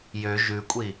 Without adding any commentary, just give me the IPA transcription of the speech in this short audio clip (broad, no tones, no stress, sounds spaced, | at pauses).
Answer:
j ø ʒ ʉ kʷʼ i